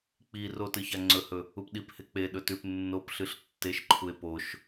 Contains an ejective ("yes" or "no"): no